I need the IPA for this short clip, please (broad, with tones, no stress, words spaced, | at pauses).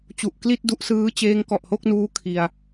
t͡ɕu˨˩ʔkli˥˩t̚du˦˥ʔsɯː˦˥ t͡ɕeː˦˥ŋkɔ˨˩ʔho˥˩k̚nuː˦˥ kʰi˧a̯